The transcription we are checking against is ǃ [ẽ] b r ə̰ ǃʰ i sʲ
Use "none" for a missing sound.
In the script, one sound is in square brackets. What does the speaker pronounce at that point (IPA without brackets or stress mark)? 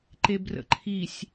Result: e